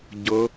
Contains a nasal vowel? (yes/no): no